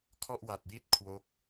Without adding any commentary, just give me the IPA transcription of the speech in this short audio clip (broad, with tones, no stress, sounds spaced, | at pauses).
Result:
kʰ ɔ˥˩ ʔ w a˨˩ t̚ j i˥˩ t̚ kʰ w o˦˥ k̚